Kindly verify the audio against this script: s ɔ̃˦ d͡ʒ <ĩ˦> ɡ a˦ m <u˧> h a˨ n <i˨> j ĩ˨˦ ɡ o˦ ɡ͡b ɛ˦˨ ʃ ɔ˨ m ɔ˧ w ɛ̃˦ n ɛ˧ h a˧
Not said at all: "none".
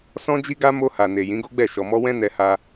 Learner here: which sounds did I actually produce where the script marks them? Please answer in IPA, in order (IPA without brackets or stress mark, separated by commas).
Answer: i˦, o˧, e˨